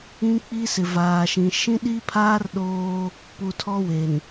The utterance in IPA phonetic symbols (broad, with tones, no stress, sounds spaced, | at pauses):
ĩ˦ k͡p i˦ s ɪ˨ v aː˨ ʃ ĩ˨ ʃ ĩ˦ ɗ i˦ pʰ aː˦ r ɗ oː˦ | p u˨ tʰ ɔ˦ w e˨ n